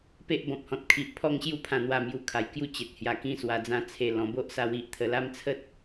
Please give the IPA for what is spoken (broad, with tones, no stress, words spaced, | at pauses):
pe˦ʔbɔ̃˨p̚hɔ̃˨t̚ kʰi˨ʔpʰɔ˦ŋɕju˦pʰã˧ n̪wa˧mju˧kʰa˨˩jkju˥˧ t͡ɕe˨t̚hja˨˩kĩ˧ swa˨˩d͡zã˧t͡sʰe˨˩ lɔ̃˨˩bo˦ʔsa˧w i˨ʔt̪ʰə˧ la˥˧mt͡sʰə˦t̚